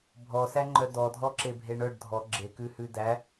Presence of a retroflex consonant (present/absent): present